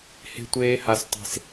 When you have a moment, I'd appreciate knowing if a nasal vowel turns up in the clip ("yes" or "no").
no